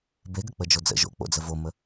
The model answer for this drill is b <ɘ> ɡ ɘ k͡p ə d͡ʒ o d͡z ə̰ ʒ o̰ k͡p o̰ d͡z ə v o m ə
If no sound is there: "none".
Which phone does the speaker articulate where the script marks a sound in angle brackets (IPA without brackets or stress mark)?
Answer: e